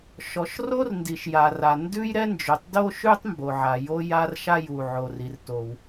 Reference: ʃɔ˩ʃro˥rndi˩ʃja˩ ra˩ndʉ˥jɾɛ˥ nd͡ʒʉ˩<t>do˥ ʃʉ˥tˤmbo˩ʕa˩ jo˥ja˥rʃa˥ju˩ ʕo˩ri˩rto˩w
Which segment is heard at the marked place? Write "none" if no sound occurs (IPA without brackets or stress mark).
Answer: tˤ